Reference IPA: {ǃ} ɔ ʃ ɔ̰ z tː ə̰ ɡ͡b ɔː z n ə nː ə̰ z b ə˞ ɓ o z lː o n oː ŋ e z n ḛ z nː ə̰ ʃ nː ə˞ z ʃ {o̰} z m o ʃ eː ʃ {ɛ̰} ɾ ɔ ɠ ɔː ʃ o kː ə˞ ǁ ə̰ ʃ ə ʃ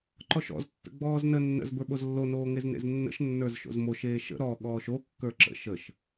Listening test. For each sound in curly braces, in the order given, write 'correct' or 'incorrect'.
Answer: correct, correct, incorrect

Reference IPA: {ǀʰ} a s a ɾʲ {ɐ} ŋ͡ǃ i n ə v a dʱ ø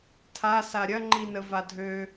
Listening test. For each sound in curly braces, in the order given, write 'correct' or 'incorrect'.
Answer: incorrect, correct

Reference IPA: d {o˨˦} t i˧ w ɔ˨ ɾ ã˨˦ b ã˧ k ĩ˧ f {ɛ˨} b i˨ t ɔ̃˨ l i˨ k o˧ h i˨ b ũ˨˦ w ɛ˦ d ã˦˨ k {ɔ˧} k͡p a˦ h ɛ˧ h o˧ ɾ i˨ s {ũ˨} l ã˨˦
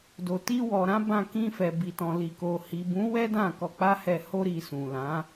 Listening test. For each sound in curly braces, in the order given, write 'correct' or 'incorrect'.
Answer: incorrect, correct, correct, correct

